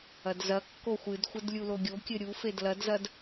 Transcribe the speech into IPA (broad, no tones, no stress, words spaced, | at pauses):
ɐdzɐkːo xʷɨdxʷɘd lʲuloɡʲokʲɘ ɾʲufed lɐdzɐd